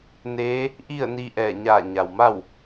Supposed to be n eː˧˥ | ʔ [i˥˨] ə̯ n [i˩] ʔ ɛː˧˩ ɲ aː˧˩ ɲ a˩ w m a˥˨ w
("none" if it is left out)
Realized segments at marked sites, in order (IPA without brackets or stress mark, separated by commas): i˥˨, i˧